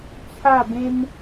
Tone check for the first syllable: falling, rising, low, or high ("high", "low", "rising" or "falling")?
falling